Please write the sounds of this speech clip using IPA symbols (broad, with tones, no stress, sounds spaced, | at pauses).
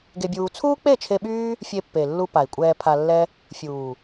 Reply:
ɡ e˧ bʲ uː˧ t͡sʰ uː˦ k͡p e˦˨ t͡ʃʰ e˧ ɓ yː˦ | fʲ e˧ pː e˨ lː u˧ p a˨ i̯ kʷʼ ɛː˧ pʰ a˧ lː ɛ˦ | fʲ uː˨